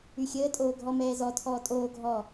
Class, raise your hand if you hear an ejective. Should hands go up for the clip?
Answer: yes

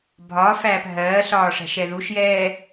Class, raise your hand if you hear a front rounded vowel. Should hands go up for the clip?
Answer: no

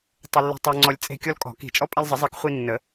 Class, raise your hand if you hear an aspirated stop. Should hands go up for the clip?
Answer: no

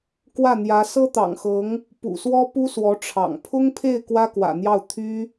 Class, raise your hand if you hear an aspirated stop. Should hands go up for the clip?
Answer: yes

